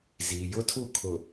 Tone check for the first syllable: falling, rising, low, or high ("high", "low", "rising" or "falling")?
low